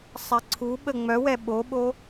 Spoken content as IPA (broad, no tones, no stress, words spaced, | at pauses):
sˤɛǀʰuɓə ŋ͡mœwɛ ɓoɓo